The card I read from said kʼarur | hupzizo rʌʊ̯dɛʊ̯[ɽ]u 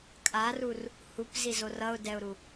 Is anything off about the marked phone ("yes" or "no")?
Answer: yes